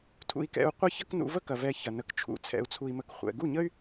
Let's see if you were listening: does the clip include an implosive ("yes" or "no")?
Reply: no